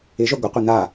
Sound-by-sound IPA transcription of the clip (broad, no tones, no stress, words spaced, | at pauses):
ɪʒœ ɡʷɪqʷi n̪a